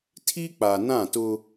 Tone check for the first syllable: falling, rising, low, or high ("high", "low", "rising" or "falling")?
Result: high